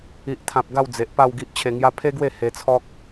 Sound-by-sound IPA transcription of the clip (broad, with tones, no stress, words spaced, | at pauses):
i˨ʔt̪ʰã˨p̚ ɡa˥˧wd͡ze˨ʔpa˥˧w ɡi˦ʔt͡ɕʰe˧ŋja˦ pʰe˦ɡwe˥˧ he˧t͡sʰɔ˦k̚